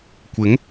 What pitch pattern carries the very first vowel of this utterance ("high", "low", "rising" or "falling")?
rising